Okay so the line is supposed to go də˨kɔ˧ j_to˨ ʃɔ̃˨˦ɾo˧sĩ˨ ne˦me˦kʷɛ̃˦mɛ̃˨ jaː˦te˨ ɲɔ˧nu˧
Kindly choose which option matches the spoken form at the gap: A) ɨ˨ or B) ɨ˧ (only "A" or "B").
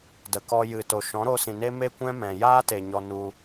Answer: A